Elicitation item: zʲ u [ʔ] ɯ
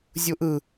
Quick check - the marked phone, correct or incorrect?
correct